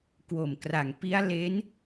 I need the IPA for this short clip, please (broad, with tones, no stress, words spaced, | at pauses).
kwo˨˩mkra˨˩ŋ pi˦˥a̯ le˦˥n